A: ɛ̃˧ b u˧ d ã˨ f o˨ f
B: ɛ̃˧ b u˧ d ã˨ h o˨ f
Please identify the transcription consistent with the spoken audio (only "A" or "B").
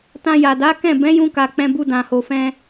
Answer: B